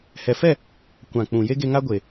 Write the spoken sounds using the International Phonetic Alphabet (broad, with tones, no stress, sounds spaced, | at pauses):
h ɛ˨ f ɛ˦˨ | kʷ ã˨ k͡p ũ˨ j e˦ ɡ e˧ ŋ a˦ ɡʷ e˨